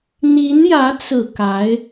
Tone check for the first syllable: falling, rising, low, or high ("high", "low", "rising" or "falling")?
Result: rising